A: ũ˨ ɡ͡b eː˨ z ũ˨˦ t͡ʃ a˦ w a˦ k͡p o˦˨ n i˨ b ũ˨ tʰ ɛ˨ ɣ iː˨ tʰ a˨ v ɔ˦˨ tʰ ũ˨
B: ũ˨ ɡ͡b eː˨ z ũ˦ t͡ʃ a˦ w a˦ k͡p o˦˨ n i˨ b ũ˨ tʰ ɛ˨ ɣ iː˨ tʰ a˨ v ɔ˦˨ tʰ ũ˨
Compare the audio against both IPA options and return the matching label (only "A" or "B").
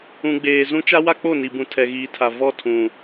B